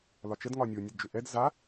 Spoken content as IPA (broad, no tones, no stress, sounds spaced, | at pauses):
l ɒ t͡ʃ ə d ŋ ɒ nʲ o nʲ ə d d͡ʒ ʏ ʔ ɛ d z a